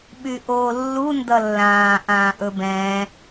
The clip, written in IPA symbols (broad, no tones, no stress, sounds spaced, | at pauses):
ɓ y ʔ oː lː u n d ʌ lː ãː ʔ ãː ʔ ɵ b ɛ̃ː